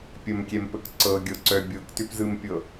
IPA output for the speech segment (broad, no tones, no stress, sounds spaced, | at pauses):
pʲ ə m kʲ ɛ m p ə k ǀ ɤ ɡʲ ɤ ǀ œ bʲ ɤ k t ʏ p z ɯ m pʲ ɤ